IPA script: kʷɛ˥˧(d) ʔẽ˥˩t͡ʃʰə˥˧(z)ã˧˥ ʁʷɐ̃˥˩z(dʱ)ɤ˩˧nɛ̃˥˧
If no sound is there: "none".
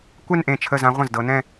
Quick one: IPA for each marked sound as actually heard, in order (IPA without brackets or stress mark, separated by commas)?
n, z, d